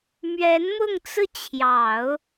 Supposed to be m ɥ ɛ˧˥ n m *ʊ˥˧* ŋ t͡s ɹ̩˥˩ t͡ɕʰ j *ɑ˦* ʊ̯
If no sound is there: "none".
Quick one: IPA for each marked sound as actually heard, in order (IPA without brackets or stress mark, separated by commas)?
ʊ˥˧, ɑ˨˩˦